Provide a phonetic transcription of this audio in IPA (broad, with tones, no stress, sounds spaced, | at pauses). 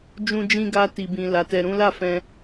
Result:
d͡ʒ ũ˧ d͡ʒ ĩ˧ ɡ a˧ t i˨ b ĩ˨ l a˨˦ t ɛ˧ ɾ ũ˦ l a˦˨ f ɛ̃˧